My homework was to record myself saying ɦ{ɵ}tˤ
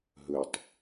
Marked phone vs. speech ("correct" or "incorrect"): correct